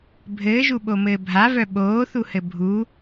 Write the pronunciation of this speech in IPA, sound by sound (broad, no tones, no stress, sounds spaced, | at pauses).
bʱ ɘː ʒ u ɓ o m ɘː bʱ a v œ ɓ oː θ u h ɘ bʱ u